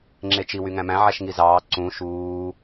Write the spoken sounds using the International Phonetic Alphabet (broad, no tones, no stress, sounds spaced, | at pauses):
ŋ͡ǁ e t͡ʃ i w y ŋ æ̃ m æ̃ ʕ æ ʃ ŋ i z ɑː ǀ ũ ʃ uː